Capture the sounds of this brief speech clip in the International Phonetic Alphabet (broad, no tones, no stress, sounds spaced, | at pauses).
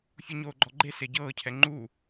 fʲ u ɲ oː ɡ͡ǃ ɔ ɡ͡ǃ e s e ɟ ɤː cʰ ɛ ŋ͡ǃ u